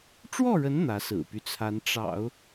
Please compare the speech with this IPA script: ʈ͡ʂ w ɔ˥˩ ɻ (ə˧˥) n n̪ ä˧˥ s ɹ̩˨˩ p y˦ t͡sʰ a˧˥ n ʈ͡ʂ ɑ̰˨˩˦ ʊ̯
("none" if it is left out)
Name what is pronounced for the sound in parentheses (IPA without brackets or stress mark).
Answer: ə˧˥